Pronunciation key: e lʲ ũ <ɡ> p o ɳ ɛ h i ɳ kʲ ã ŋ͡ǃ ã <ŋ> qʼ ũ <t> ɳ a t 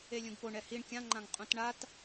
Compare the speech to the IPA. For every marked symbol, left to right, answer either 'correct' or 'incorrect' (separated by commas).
correct, correct, correct